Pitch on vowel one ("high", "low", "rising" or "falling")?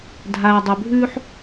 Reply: low